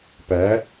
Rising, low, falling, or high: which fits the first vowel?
rising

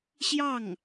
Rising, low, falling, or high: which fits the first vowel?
falling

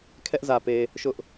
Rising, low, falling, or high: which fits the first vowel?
high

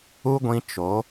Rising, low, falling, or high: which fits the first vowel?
high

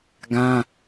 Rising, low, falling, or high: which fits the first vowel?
high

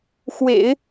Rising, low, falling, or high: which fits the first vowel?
low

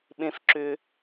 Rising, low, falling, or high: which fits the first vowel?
low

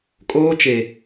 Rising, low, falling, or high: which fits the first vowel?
high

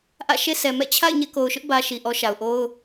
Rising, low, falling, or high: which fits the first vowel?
falling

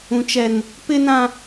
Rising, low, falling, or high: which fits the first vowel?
high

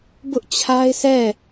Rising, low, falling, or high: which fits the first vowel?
high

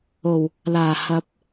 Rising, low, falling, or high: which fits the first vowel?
low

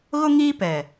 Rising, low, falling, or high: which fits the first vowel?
high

